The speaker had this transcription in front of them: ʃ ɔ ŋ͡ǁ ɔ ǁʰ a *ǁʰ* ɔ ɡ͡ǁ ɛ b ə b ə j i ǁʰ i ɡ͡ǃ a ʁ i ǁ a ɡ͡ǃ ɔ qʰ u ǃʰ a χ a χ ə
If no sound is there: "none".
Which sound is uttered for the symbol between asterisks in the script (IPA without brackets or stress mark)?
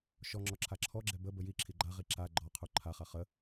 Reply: ǁʰ